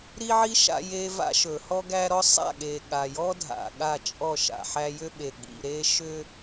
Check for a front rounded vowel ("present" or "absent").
present